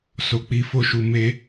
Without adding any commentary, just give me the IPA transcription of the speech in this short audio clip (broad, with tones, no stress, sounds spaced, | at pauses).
s o˨ k͡p i˨˦ f o˦˨ ʃ u˨ m e˧